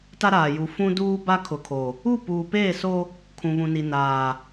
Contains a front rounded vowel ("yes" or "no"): no